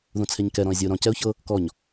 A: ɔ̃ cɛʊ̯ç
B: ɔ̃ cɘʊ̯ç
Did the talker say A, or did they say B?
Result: A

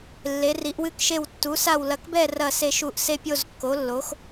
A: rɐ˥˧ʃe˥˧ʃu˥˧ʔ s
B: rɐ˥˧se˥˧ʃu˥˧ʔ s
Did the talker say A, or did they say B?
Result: B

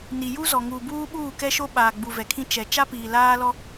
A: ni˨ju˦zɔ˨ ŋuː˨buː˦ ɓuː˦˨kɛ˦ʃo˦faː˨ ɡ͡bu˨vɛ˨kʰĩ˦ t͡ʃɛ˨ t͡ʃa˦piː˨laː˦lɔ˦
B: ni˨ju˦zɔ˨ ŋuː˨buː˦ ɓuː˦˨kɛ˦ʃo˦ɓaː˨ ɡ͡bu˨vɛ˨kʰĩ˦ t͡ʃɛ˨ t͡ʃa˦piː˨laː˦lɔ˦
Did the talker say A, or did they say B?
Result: B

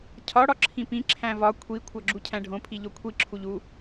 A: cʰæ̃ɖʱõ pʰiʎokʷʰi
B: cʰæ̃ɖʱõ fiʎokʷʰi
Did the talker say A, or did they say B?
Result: A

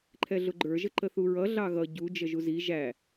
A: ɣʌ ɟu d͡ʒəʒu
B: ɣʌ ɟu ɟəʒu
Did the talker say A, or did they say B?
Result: A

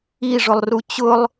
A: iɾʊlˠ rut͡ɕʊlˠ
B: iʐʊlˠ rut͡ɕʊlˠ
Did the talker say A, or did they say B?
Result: B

